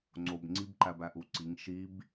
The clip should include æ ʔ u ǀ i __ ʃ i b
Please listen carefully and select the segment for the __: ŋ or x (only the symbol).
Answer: ŋ